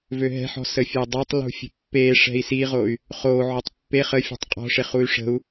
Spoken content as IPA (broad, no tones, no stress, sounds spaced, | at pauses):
v ø ɦ ɛ̤ ħ ɔ̤ s ə fʲ ə i̯ dˤ o tˤ l ṳ fʲ ə̤ pː e ʂ ɛ̤ i̯ s i ʁ o y̯ | χ o ʕ o tˤ pː e χ ə fʲ ṳ tˤ qʼ ɔ̤ ʂ e χ u y̯ ʂ ə̤ u̯